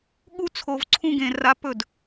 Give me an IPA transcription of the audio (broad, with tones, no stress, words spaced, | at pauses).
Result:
ɠu˥ t͡sʰo˧vǀʰũ˥ɡẽ˧ ra˧˥p ɵ˥˩d